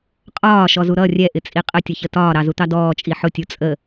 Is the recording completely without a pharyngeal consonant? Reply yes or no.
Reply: no